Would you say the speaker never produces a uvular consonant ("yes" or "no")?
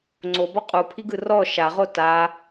no